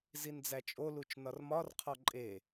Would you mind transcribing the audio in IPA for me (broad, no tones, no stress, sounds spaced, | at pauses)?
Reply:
z i n d͡z æ t͡ʃʼ o l u t͡ʃ n ɒ r m ɒ r qʰ ɒ ǃʼ e